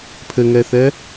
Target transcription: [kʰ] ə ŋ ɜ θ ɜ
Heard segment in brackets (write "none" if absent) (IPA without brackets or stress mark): pʰ